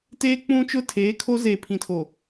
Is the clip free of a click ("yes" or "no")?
yes